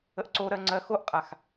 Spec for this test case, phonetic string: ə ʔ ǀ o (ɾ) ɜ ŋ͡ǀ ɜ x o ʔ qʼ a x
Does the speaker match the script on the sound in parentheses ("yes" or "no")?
yes